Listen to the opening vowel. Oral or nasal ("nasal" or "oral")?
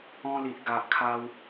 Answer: nasal